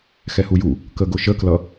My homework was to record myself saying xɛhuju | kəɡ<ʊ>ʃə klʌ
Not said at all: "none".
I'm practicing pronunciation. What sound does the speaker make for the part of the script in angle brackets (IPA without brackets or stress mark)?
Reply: ʊ